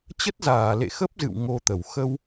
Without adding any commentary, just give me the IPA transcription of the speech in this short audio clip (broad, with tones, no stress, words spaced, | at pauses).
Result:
t͡ɕə˦˥t̚zaː˧˩lḛ˧˨ xə˦˥p̚zɨ̰˧˨w ŋo˧t̪ə˧˩w xə˧w